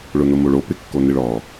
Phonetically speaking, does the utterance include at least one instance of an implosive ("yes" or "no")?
no